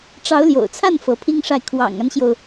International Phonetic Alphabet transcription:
ʈ͡ʂ ɑ˧˥ ʊ̯ l j o̰˨˩ ʊ̯ t͡sʰ a˥˩ n f ɤ˧˥ pʰ i˥ ŋ ʂ a˥˩ ɪ̯ kʰ w ɑ̰˨˩ ŋ a˦ n ɕ j o˩ ʊ̯

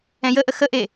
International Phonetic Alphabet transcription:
ɛ̃ j ə ʔ ə x ə ʔ e

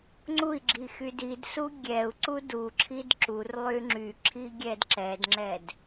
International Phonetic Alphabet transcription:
ŋ͡ǀ u i̯ ɡ͡ǁ i x y d i d s u ɡʲ ɛ u̯ ǀ u d u ǁʰ i d ǁ u r lˠ y ŋ͡ǁ y ǁʰ i ɡʲ ɛ d ǁ ɛ d ŋ͡ǁ ɛ d

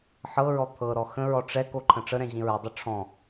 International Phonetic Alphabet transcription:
ħ ɤ ɹ ɔ t̪ʰ ɤ ɾ ɔ x ə̃ ɹ ɔ ʈ͡ʂ ɛ k o ǃʰ ə̃ ʈ͡ʂ ə ɾ ɛ̃ ʑ ĩ ɹ ə dˤ ə ʈ͡ʂʰ ɔ̃

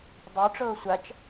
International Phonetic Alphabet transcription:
dˤ œ ʈ͡ʂ ɤː sʷ a t͡ʃ

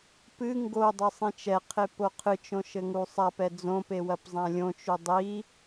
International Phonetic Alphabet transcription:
p ɨ ŋ ɡ o dˤ ɘ sˤ ĩ t͡ʃ ɛ qʰ e p o qʰ ɨ t͡ʃ õ ʃ ɘ ŋ u sˤ a p ɛ d͡z õ p e w ɐ p zˤ ã lʲ õ t͡ʃ u dˤ i

